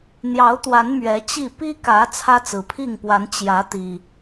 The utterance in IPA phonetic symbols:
n̪ j ɑ˨˦ ʊ̯ t̪ w a˨˦ n m ɥ ɛ˨˦ t͡ɕ i˥˨ p i˦ k ä˨˦ t͡sʰ ä˦ t͡s ɹ̩˨˩ pʰ i˥˨ ŋ p w a˨˦ n t͡ɕ j ä˨˦ t̪ i˨˩

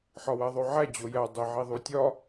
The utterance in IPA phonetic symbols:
ħ ɒ w æ ðˤ o ʕ æ d͡ʑ o j æ dˤ e ʕ i ðˤ u tʲ ɒ

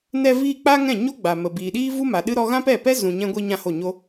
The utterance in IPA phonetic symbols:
n ɛ˧ v iː˧ k͡p a˦ ŋ ɛ̃˦˨ ɲ o˦ ɡ͡b a˨ m ə˨ b iː˨ ɗ iː˦ v u˦ m a˨ ɗ ɨ˦ ɾ ɔ˦ ɣ ã˦ p ɛ˦˨ p ɛ˦ z ũ˨ ɲ ɛ̃˦ ɡʷ i˦ ɲ ã˦ h o˦˨ ɲ o˦

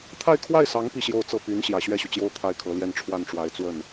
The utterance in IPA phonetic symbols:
t̪ʰ a˥˧ ɪ̯ kʰ w a˥˩ ɪ̯ s ɑ˧˥ ŋ p i˥˧ ɕ j o˥˧ ʊ̯ t͡s ɤ˥˩ p y˧˥ n ɕ j ä˨˩ ɕ ɥ ɛ˥˩ ɕ y˩ t͡ɕ j o˥˧ ʊ̯ t̪ʰ a˥˩ ɪ̯ kʰ ɤ˧˥ l j ɛ˥˧ n ʈ͡ʂʰ w a˥˩ n ʈ͡ʂ w a˧˥ ɪ̯ t͡s w ə˥˩ n

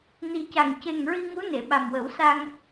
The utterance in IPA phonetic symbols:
n i˨˩ c a˨˩ ŋ c e˨˩ ŋ ɹ i˧ ŋ u˧˥ n e˨˩˨ ɓ a˨˩ m w ə˨˩˦ w s a˧ ŋ

